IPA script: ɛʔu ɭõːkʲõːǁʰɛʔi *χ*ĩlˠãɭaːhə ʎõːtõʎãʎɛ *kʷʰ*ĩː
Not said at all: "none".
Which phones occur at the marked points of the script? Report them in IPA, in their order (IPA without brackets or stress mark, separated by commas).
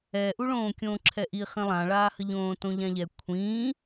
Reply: χ, kʷʰ